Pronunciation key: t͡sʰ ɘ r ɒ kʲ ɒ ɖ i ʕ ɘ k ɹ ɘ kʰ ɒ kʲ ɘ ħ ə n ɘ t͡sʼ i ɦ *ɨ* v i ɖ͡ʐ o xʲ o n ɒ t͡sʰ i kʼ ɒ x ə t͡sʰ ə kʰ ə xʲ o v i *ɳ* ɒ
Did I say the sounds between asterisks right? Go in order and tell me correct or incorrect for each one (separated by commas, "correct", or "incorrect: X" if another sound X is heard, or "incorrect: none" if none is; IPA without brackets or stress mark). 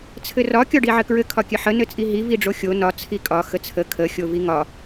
incorrect: i, incorrect: ŋ